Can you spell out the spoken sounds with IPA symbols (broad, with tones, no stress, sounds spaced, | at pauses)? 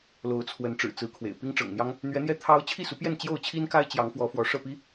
l o˨˦ ʊ̯ t͡sʰ w ə˨˦ n ʈ͡ʂ ɻ̩˨˩ t͡s ɹ̩˨˦ kʰ w ḛ˨˩ ɪ̯ p i˦ ŋ ʈ͡ʂ ɤ̰˨˩ ŋ n̪ j ɑ˦ ŋ | n̪ ɥ ɛ˨˦ n̪ j ɛ˧ t̪ʰ ɑ˦ ʊ̯ t͡ɕʰ i˥˨ s u˨˦ p j ɛ˥˨ n t͡ɕ j o˥˨ ʊ̯ t͡ɕʰ i˦ n k a˦ ɪ̯ t͡ɕ j ɑ˨˦ ŋ f w ɔ˨˦ f w ɔ˨˦ ʂ ɤ˥˨ p i˦